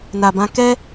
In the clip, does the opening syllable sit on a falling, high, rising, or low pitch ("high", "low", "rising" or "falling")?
low